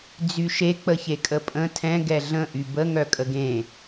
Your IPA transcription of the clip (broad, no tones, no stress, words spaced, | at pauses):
d͡zyʃe k͡pəçekʼəpʼə̃ tʰɛ̃ ɡɛɮə̃ ʔybə ŋœkʼəɡẽ